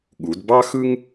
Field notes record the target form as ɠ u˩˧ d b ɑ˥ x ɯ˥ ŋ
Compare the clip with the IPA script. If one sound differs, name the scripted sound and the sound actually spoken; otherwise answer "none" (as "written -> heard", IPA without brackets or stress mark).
none